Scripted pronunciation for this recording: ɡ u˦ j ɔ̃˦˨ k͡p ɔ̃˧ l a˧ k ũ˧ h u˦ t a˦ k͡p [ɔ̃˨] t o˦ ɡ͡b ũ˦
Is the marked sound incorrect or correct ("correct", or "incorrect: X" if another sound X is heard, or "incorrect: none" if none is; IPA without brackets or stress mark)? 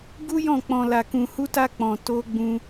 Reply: incorrect: ɔ̃˧